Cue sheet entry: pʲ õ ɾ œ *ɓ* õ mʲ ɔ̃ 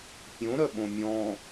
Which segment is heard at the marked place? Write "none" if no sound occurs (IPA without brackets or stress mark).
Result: ɓ